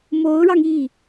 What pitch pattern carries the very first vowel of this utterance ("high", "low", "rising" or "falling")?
rising